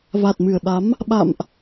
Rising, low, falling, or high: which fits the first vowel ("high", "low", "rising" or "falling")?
low